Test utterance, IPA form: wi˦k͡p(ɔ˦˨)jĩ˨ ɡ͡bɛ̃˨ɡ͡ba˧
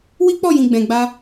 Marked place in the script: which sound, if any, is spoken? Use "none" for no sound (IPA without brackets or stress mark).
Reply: ɔ˦˨